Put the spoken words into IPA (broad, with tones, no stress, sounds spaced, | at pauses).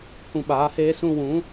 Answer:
h ũ˧ ɓ aː˨˦ h eː˦ s ũ˧ w ũ˨˦